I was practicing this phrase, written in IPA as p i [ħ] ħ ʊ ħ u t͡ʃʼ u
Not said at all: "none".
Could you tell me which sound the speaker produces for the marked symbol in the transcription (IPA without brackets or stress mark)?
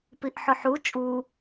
ʔ